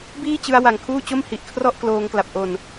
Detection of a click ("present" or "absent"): absent